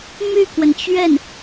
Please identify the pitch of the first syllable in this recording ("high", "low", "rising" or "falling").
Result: falling